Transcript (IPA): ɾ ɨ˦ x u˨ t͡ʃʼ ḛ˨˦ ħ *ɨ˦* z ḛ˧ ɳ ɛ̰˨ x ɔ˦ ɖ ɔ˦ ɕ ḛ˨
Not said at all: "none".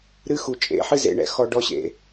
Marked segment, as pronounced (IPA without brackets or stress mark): ɨ˦